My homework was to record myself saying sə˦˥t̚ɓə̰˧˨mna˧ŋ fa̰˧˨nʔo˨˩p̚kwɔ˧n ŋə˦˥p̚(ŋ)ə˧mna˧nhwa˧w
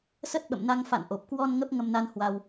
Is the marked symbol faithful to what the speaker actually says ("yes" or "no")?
yes